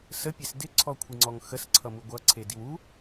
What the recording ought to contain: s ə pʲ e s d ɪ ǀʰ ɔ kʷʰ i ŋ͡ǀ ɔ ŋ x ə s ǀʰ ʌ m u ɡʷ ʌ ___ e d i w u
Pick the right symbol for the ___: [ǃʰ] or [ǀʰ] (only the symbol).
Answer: ǀʰ